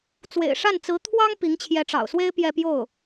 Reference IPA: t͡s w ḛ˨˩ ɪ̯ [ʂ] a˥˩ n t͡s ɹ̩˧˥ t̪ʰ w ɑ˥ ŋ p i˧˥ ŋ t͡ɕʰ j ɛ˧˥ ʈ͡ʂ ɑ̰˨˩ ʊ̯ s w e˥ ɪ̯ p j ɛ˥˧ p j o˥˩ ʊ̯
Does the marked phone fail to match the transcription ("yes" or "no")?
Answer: no